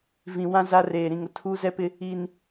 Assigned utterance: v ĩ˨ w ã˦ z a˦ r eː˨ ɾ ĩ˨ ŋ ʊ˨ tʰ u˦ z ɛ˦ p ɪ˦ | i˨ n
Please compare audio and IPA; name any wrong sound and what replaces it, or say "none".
none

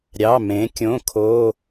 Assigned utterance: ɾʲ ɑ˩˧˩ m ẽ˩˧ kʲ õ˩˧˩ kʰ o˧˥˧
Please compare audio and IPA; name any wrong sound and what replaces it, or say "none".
none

